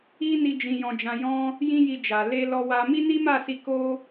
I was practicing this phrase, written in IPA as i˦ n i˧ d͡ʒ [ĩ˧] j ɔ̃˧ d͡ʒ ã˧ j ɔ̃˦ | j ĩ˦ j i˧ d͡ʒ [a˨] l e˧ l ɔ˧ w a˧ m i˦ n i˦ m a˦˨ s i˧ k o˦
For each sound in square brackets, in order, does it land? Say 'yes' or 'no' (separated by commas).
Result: yes, yes